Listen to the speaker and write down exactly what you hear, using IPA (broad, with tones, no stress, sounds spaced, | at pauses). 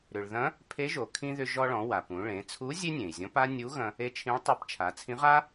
ɾ ʏ˩ ɭ ð ɐ̃˧˥ | pʰ e˧˥ ʒ o˩ kʰ ĩ˧ ð ʏ˧ ʒ ɔ˧ ɭ ɔ̃˩˧ w a˩ p ũ˩˧ ɭ ẽ˩˧ t͡sʰ u˧˥ zʲ e˥ nʲ ẽ˩ i̯ zʲ ɔ̃˧˥ p a˥ nʲ u˧˥ ɣ ɐ̃˧ | e˧˥ t͡ʃʰ ĩ˧˥ ɭ tˤ e˧˥ p t͡ʃʰ a˩˧ t͡sʰ ĩ˧˥ ʁ a˥